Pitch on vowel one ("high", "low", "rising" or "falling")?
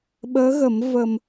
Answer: rising